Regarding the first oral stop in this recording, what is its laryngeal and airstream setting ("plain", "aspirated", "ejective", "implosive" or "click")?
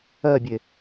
plain